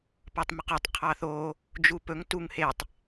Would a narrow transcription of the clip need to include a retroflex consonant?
no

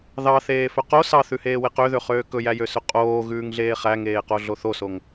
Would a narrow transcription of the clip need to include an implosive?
no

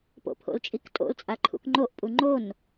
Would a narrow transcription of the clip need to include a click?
yes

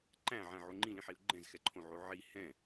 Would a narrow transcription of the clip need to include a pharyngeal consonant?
yes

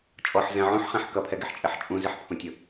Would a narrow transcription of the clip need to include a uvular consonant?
yes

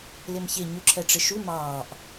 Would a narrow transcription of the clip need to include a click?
yes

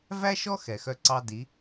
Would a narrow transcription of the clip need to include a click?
yes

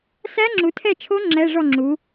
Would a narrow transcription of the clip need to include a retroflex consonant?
yes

